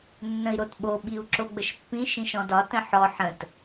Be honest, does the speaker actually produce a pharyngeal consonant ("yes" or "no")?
yes